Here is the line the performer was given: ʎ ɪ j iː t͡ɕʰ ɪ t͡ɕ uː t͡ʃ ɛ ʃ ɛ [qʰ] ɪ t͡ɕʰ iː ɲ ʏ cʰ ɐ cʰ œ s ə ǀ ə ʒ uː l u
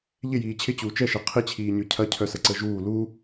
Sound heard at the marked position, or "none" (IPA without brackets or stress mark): qʰ